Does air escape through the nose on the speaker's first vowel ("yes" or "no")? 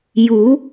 no